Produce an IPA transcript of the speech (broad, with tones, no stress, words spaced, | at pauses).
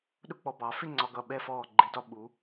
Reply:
ɗʊ˥˧k͡pɔ˧ bɑ˩˧fɪ˥˧ ŋ͡ǀɒ˧ɡʌ˧˩ɓɛ˥˧fɔː˧˩ ɡ͡ǃi˩˧dɒ˩˧ ɓu˩˧